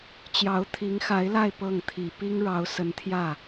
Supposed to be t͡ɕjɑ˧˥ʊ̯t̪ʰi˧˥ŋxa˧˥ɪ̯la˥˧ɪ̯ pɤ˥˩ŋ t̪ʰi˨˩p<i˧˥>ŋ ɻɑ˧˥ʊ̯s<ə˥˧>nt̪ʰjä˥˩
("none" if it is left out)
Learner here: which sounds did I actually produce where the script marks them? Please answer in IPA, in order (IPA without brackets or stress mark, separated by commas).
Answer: i˥, ə˧˥